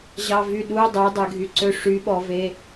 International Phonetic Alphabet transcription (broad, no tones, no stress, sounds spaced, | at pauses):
ʑ ɑ v y ɗ u dˤ ɛ dˤ ɛ ɡʱ y ǀ ø ʂ y ɓ ɔ v e